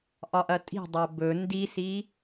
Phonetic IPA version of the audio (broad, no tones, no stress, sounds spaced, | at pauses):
ʔ ɒ ʔ ɐ tʼ i̤ dˤ ɐ b ɵ n d i s i